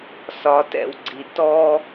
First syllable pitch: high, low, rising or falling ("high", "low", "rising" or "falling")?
rising